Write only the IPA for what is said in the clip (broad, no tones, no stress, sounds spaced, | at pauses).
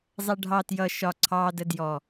zˤ ɛ ɖʱ ɑ t j ʌ ʃ ɒ ǀʰ ɑ d ə d j ɔ